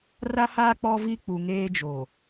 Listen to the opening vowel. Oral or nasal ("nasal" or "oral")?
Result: oral